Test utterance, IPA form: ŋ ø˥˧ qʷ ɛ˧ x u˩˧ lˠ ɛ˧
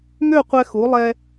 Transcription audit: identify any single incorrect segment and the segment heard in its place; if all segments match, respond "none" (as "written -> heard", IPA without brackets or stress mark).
none